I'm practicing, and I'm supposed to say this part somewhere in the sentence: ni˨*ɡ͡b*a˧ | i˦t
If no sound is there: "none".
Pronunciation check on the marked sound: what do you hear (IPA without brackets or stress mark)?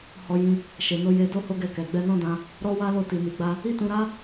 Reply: ɡ͡b